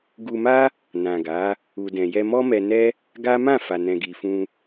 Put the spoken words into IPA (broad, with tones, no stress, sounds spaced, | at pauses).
ɡ u˧ m a˦ | n ã˨ ɡ a˨˦ | u˨ d ɛ̃˨ j ɛ˧ m ɔ˦ m ɛ˧ n ɛ˦ | ɡ a˦ m ã˦˨ f a˨ n ɛ̃˨ ɡ i˨ f ũ˧